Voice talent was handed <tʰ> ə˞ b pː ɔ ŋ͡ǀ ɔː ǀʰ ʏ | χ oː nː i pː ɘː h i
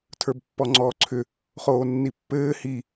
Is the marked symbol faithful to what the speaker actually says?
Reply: yes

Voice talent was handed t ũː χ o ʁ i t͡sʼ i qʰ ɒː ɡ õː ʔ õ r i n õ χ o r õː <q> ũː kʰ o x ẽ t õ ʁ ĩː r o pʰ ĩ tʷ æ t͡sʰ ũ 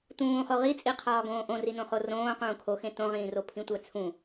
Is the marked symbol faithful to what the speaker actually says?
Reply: yes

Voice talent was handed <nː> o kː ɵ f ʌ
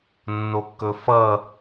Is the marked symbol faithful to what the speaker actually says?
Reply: yes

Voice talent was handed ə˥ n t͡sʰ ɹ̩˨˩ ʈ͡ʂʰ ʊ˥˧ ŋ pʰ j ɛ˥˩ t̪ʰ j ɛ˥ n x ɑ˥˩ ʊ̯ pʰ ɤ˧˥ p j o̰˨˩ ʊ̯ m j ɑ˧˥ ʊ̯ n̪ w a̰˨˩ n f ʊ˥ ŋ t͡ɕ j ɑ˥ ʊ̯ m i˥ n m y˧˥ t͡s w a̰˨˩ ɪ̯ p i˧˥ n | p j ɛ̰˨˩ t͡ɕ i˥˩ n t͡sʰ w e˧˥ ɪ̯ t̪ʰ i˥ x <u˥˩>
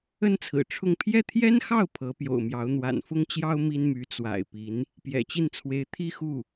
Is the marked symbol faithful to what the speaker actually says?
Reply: yes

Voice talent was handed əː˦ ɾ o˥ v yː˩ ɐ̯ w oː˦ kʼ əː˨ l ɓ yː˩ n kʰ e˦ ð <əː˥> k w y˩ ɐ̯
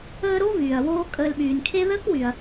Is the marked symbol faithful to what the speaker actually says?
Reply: yes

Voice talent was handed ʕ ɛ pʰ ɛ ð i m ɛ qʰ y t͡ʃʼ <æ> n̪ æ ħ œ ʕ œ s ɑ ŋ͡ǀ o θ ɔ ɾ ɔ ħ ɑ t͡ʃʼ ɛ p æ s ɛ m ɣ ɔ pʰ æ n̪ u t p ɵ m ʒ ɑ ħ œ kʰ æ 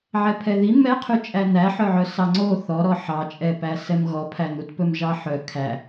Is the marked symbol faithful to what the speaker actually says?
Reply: yes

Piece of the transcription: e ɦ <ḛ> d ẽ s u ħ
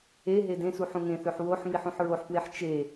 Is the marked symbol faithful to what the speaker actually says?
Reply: no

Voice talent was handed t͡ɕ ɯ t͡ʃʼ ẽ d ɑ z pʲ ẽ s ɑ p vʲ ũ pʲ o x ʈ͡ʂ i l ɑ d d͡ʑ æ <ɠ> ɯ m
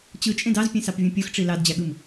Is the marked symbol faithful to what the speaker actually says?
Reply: yes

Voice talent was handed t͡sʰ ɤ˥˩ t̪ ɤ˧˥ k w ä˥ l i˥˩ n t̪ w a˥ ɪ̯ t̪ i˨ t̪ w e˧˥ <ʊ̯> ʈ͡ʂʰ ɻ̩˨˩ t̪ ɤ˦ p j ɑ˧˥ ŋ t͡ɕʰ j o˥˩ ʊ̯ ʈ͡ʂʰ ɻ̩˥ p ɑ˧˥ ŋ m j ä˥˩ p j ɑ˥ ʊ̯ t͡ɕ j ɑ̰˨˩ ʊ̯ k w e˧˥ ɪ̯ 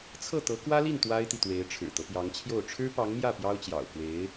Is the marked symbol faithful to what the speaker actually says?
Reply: no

